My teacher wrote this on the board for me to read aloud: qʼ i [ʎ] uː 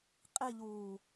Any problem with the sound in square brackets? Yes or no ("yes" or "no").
no